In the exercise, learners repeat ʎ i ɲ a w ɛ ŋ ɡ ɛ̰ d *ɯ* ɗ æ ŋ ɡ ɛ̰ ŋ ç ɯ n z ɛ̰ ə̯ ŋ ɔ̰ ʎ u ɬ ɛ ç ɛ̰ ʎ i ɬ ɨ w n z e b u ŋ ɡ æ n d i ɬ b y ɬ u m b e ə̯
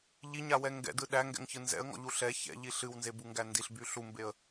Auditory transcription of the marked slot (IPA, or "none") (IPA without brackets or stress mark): ɯ